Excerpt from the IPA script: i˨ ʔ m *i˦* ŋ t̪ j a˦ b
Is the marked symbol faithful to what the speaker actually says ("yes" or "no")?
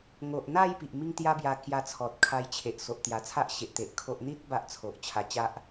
yes